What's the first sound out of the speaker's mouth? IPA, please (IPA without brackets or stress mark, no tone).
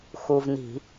x